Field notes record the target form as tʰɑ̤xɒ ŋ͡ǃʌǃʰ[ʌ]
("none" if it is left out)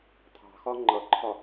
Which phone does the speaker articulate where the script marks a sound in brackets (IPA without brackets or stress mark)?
ɒ